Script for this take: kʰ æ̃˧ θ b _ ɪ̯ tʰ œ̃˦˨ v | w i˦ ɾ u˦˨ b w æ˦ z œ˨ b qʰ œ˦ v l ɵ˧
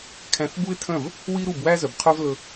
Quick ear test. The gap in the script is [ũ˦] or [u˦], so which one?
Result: u˦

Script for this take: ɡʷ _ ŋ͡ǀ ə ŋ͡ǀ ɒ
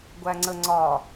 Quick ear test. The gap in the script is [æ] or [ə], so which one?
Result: æ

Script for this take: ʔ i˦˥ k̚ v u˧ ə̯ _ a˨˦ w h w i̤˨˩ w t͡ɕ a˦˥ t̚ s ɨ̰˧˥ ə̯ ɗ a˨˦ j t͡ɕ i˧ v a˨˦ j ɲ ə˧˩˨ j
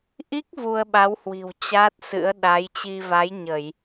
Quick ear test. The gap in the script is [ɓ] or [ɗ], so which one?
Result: ɓ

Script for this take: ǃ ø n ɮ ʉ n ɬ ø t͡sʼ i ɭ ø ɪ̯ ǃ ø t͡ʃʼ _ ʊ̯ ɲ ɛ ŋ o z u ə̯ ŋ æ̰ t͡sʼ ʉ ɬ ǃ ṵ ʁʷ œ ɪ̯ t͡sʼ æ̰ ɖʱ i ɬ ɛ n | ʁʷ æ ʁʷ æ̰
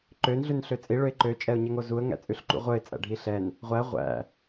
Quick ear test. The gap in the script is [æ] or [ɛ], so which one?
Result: ɛ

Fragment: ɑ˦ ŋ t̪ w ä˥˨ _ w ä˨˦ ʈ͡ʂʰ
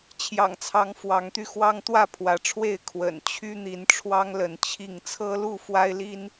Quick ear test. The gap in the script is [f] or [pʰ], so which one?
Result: pʰ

